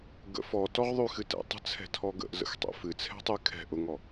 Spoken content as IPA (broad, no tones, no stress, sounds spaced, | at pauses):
ɡ ə̰ f ɔ t ɔ ʁ ðˤ y x ɨ t ɛ̰ tˤ ə̤ t͡sʰ ɛ̤ tʰ ɔ ɡ ə̰ ʔ z ə̰ x tˤ ɛ̰ f ɨ t͡sʰ ɛ̤ tˤ y kʰ ɛ̤ ʔ ʊ ŋ ɔ